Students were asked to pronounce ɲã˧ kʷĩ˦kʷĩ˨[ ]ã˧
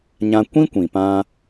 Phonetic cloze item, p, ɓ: p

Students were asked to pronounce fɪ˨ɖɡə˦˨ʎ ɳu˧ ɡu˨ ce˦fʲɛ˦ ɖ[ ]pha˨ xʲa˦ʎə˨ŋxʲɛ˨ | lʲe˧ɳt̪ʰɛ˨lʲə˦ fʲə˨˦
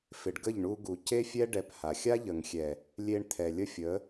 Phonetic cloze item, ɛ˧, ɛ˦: ɛ˧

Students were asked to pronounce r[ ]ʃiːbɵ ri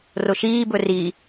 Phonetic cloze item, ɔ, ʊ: ʊ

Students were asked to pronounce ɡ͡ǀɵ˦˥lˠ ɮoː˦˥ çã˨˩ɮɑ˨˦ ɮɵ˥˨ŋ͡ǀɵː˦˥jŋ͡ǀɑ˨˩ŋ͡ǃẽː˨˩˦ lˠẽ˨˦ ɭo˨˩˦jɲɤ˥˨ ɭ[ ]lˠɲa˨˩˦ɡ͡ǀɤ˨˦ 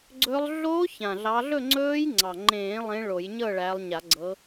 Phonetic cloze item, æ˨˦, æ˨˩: æ˨˦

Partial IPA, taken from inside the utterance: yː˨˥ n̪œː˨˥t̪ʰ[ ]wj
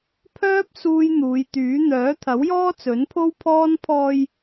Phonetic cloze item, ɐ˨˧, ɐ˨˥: ɐ˨˥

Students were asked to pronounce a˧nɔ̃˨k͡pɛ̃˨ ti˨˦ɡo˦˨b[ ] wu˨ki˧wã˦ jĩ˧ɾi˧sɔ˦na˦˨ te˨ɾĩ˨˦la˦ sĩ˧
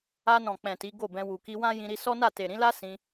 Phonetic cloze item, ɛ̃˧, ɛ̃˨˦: ɛ̃˧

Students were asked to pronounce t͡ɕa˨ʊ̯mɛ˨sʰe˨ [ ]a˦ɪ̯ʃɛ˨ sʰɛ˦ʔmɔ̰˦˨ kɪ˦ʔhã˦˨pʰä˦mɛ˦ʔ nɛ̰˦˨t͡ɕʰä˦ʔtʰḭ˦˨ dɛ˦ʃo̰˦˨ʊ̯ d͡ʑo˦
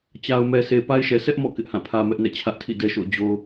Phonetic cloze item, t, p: p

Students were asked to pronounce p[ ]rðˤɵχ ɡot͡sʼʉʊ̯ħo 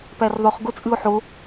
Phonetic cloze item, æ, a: æ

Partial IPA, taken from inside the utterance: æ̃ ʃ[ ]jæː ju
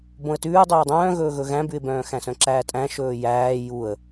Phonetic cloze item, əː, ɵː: ɵː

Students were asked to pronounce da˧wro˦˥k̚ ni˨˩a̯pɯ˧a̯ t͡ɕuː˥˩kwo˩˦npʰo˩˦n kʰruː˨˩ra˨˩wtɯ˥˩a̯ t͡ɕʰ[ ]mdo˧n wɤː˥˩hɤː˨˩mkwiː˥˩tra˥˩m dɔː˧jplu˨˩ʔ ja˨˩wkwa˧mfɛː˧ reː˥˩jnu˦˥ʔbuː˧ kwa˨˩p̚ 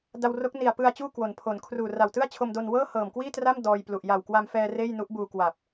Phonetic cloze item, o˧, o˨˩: o˧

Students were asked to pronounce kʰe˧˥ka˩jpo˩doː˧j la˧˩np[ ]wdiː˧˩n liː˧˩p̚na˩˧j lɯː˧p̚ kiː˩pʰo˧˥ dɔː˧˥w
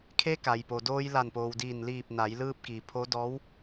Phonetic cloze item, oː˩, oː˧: oː˩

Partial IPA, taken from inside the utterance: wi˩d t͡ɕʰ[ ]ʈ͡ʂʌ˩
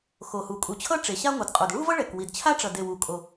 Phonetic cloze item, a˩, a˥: a˥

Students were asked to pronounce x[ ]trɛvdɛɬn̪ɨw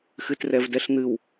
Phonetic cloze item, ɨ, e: ɨ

